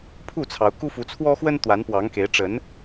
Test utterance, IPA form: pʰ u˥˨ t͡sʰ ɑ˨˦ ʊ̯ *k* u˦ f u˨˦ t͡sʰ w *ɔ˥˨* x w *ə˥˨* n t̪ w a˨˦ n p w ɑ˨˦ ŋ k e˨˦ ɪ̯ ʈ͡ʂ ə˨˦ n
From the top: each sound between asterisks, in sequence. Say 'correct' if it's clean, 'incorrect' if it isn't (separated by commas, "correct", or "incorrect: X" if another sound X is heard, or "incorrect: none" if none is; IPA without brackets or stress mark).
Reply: correct, incorrect: ɔ˦, incorrect: ə˦